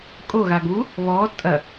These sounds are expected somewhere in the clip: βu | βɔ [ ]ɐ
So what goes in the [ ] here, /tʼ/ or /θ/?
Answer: tʼ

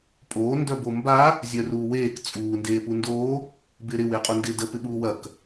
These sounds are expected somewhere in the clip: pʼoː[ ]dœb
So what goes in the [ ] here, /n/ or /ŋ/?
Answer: n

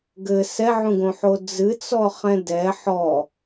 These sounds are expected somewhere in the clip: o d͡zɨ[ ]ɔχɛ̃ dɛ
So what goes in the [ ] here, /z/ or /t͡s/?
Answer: t͡s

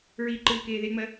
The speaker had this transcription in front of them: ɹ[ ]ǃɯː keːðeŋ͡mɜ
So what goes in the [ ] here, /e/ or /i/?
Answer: i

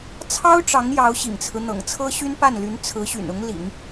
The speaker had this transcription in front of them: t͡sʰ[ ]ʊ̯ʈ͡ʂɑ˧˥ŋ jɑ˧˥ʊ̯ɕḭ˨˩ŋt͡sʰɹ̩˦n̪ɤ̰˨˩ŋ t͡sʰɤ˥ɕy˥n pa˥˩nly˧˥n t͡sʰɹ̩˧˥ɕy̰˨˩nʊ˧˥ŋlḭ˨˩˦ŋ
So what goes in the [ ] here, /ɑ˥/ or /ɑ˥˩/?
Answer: ɑ˥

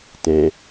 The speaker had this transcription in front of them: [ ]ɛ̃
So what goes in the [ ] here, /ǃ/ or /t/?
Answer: t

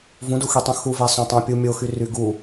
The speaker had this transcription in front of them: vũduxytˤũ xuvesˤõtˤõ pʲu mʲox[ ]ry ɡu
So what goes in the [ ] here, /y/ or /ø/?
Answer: y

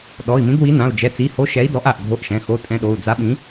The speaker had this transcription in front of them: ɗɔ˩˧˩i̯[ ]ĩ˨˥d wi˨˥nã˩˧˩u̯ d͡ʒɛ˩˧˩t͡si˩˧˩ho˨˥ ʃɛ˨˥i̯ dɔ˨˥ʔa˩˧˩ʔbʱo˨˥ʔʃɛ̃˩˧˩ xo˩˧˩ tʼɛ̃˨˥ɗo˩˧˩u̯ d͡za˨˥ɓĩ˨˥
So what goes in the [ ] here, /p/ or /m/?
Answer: m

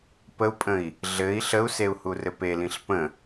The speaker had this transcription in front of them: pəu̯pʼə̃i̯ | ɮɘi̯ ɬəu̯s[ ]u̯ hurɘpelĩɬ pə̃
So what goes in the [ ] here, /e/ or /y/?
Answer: e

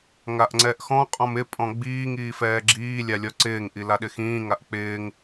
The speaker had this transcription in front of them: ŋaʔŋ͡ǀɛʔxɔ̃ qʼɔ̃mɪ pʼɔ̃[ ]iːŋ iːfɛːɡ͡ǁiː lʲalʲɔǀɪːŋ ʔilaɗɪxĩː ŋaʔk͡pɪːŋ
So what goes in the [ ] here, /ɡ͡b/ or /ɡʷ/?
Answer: ɡ͡b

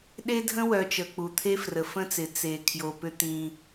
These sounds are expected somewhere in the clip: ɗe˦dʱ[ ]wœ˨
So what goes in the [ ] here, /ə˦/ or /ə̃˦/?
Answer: ə̃˦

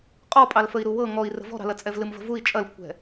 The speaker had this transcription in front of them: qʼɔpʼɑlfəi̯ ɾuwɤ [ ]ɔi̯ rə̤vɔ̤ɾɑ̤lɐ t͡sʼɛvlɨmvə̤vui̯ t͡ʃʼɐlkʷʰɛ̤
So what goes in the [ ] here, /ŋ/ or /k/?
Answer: ŋ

